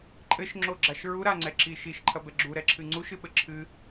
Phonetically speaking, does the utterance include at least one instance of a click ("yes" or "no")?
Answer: yes